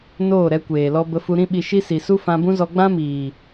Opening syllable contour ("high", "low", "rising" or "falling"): falling